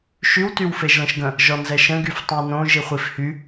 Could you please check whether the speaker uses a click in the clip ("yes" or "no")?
no